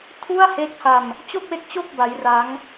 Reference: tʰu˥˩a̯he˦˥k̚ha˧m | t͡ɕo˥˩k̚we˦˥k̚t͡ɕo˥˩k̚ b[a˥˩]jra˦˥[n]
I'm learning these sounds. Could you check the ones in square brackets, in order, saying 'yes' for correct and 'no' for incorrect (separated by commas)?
no, no